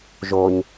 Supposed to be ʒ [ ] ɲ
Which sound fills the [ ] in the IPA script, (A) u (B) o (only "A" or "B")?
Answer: B